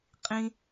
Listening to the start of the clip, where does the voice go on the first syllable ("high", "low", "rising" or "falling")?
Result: high